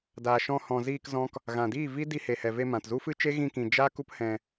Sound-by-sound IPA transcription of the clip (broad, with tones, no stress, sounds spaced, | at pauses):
d aː˨ ʃ ɔ̃˧ h ɔ̃˨ z iː˧ k z ɔ̃˦ k | ɣ ã˨ d iː˦˨ v i˦ d i˧ h e˨ h ɛ˨ v e˧ m ã˨ t z u˦ f ɨ˦ t͡ʃ e˦ ɣ ĩ˧ k ĩ˨ d͡ʒ a˦ k u˦ p h ɛ̃˧